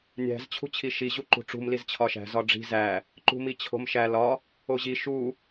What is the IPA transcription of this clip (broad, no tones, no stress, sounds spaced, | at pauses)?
nʲ æ̤ z t͡ɕʰ ṳ t͡ɕʰ i ʃ i ʑ u ǃ ṳ ʈ͡ʂ ṳ m l i z t͡ɕʰ ɒ ʃ æ̤ z ɒ ɖ͡ʐ i̤ z æ | ǃ ṳ m i t͡ɕʰ o̤ m ʃ æ l ɒ | o ʑ i ʃ u